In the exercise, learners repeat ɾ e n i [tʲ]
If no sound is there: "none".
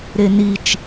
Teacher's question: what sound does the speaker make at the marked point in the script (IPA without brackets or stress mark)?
t͡ʃ